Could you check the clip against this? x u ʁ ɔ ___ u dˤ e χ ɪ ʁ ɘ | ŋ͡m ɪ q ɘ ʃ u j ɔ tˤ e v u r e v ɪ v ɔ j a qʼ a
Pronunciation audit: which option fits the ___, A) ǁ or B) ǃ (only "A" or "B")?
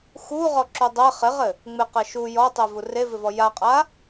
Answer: A